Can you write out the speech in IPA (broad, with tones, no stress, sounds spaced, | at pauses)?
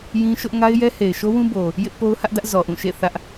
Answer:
j ĩ˦ ʃ ʊ˦ ʔ ŋ a˦ ɪ̯ j ɛ˦ h e˨ ɪ̯ ʃ o˦ w ũ˦ b o˨ | j ɪ˦ ʔ p o˦ ʊ̯ h ä˦ ʔ d ä˦ ʔ z ɔ˨ ʔ ũ˦˨ ʃ ḛ˦˨ θ ä˦ ʔ